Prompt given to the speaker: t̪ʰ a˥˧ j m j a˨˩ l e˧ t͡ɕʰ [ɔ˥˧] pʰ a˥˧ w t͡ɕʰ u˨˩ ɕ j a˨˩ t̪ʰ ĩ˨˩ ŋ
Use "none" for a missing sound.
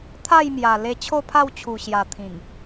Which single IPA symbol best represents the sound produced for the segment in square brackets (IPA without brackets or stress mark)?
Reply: o˥˧